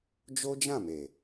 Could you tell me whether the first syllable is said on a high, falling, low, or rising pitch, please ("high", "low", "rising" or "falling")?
high